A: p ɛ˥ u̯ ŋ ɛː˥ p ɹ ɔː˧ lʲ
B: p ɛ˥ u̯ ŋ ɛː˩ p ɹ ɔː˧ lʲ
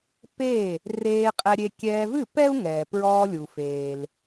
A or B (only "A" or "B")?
B